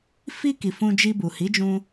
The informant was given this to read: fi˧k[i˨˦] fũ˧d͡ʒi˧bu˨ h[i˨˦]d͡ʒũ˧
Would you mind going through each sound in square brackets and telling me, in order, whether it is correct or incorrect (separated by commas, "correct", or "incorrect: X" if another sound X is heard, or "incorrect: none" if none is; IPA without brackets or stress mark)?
incorrect: i˨, correct